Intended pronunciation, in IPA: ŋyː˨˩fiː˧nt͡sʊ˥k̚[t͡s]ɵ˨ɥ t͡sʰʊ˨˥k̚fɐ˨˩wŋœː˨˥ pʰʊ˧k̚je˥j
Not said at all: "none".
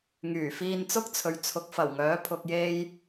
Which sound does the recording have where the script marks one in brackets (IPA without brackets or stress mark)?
t͡sʰ